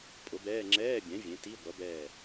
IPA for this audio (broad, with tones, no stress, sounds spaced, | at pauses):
pʼ ʊ˩˥ b ɛː˧˥˧ ŋ͡ǁ ɛː˧˥˧ bʲ ɛ̃˩˥ vʲ ẽ˩˥ t i˧˥˧ ɡʷ ʌ˩˥ b ɛː˧˩